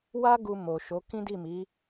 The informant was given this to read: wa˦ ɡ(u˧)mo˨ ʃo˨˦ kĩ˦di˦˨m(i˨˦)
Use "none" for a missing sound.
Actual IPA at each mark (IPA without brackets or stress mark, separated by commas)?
u˧, i˨˦